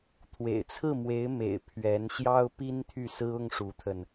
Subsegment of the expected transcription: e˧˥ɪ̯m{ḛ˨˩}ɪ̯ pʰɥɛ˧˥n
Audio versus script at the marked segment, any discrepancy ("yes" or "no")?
no